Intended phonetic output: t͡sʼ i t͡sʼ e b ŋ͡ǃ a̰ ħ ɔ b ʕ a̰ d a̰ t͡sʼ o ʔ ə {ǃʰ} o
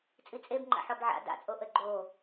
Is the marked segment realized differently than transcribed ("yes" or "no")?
yes